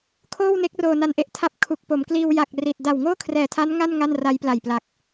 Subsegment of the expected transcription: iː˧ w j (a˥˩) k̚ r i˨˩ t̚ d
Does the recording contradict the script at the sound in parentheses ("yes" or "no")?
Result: yes